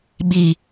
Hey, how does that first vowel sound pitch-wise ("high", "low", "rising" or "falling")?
low